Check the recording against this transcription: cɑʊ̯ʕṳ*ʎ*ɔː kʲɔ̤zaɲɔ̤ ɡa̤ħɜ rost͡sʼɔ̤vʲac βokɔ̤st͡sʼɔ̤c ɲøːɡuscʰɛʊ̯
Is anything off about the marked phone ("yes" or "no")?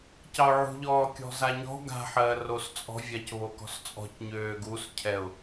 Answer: no